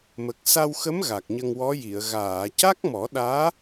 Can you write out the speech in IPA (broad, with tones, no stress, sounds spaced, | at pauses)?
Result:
m ə˨˩ k̚ s a˧ w x ə˧˥ m ɣ a˨˩ k̚ ɲ ə˧ ŋ w ɔ˧˥ j i˨˩˨ ə̯ ɣ aː˨˩˨ c a˦˥ k̚ m ɔ˨˩˦ ɗ aː˧˥